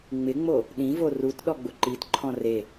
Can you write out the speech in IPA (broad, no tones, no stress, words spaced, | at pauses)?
ŋ͡mɪŋ͡mo | ɗĩvo rutɗɔɡ͡bʊ ǃitǃʰɔ̃ re